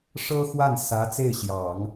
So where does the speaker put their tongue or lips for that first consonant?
retroflex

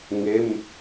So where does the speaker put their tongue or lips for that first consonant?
velum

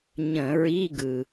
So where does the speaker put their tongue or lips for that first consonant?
palate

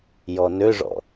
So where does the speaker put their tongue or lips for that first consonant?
palate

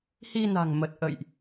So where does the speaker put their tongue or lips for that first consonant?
throat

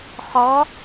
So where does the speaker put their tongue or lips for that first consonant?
uvula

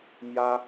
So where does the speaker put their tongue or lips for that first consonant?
lips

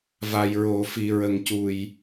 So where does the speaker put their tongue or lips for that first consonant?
lips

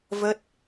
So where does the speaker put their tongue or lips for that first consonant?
lips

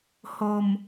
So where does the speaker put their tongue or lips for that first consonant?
throat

